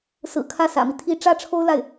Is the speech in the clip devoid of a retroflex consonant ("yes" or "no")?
no